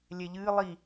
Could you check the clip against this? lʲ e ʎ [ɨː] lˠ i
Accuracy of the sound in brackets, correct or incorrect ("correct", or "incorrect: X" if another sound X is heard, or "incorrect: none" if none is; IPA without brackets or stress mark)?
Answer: correct